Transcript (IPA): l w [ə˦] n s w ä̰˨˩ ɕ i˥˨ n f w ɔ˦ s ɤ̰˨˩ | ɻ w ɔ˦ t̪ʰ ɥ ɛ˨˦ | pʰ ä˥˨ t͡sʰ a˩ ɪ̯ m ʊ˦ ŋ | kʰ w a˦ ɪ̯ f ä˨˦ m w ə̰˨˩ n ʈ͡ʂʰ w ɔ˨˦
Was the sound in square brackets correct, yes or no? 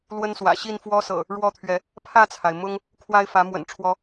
yes